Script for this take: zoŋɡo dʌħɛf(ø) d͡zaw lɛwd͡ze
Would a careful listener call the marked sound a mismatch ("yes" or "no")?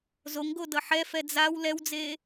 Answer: yes